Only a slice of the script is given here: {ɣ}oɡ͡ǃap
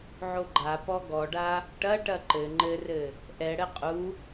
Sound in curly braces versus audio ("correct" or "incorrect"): incorrect